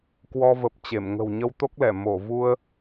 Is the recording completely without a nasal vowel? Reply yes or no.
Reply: yes